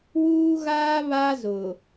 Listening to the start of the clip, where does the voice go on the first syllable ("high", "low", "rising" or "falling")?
high